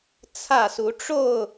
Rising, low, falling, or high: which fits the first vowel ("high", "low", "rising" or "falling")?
falling